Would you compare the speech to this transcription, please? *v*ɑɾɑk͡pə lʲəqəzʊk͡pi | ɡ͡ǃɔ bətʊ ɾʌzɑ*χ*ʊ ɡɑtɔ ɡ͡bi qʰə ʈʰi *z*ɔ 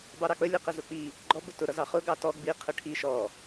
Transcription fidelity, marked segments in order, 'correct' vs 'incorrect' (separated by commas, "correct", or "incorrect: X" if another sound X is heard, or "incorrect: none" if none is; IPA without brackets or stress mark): incorrect: b, correct, incorrect: ʃ